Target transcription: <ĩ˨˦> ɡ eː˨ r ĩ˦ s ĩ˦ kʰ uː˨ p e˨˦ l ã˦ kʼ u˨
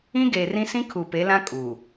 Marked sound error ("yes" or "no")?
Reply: yes